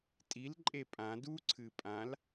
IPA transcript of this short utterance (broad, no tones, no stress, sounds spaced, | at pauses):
tʼ i l ǃʼ e pʼ ã d u ǀʰ ɨ pʼ ã l